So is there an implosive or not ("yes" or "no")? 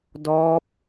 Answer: no